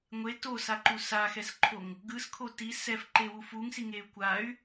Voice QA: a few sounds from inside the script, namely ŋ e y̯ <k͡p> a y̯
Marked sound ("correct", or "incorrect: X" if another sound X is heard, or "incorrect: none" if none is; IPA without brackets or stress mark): incorrect: kʷ